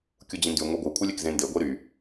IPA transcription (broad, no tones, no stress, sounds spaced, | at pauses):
kʲ u d͡ʑ ĩ n d y ŋʷ e ɡʷ ɯ kʷʰ ɯ lʲ e k z ẽ n d e ɡʷ e ɾ y